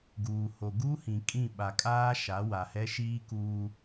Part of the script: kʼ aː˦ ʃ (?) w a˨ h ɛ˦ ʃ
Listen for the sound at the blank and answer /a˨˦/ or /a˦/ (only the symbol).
a˨˦